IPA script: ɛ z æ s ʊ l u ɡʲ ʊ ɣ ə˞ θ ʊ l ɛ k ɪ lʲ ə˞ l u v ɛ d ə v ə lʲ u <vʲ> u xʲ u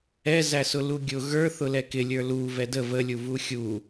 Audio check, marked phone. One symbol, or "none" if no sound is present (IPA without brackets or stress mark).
v